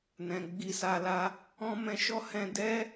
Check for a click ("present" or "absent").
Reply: absent